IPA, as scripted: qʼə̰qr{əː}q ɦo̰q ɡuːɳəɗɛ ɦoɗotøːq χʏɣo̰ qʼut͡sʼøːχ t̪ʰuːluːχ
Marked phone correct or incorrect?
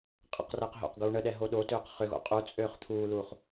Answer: correct